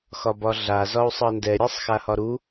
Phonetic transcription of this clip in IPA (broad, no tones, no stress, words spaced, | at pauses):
xɒbɒɮa zɒu̯sˤɤndɛ ɾʲasˤxahɒɾu